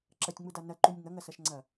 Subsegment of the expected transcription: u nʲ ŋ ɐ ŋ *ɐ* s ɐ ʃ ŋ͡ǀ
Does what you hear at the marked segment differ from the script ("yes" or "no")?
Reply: no